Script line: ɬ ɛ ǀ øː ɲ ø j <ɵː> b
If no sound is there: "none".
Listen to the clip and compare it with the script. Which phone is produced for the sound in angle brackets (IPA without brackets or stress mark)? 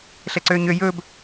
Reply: ɵː